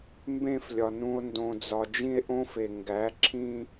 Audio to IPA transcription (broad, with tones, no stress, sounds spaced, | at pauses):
m b ẽ˦˨ f lʲ ɒ˨ n ũ˨ o̯ n d õ˨ d͡z ɒ˨ d͡ʒ ĩ˦ e̯ ʔ õ˦ f e˨ ŋ ɡ æ˨˦ ǁʰ ĩ˦